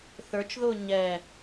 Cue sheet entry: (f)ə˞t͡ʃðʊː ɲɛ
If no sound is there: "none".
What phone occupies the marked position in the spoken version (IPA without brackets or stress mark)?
θ